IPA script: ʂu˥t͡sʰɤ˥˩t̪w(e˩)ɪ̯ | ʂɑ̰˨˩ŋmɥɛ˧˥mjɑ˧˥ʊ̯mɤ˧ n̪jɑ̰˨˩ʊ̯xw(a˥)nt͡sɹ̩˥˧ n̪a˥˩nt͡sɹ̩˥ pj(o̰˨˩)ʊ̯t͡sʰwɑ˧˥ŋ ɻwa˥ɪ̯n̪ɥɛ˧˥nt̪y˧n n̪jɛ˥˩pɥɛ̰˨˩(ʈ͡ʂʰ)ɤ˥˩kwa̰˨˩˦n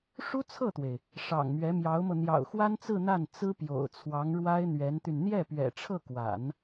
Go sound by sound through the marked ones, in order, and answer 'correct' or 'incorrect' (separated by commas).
correct, correct, correct, correct